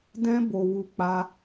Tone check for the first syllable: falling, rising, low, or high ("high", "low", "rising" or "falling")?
high